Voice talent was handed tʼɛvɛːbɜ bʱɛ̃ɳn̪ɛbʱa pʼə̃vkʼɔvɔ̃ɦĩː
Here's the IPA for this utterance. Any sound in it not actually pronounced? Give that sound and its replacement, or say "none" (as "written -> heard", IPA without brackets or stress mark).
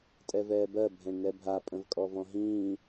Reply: none